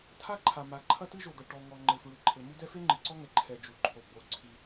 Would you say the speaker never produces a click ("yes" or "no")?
no